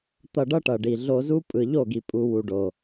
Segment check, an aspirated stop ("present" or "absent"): absent